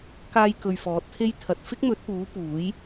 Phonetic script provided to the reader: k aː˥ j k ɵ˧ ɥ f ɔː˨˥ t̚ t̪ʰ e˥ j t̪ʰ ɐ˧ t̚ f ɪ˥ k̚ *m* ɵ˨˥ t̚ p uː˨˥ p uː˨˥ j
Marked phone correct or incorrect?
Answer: correct